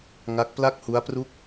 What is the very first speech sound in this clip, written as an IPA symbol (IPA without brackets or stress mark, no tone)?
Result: ŋ